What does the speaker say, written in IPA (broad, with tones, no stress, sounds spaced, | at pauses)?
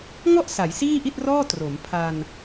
ŋ ɔ˥˩ ʔ s a˩˦ j s iː˥˩ ʔ i˥˩ t̚ r ɔː˥˩ t r o˩˦ m pʰ a˧ n